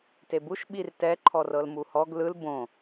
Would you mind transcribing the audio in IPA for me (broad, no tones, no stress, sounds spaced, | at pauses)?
t e b u ʃ ɓ i r t ɛ ǃʰ ɔ r ɤ l m u h ɔ ɡ l ɯ l b õ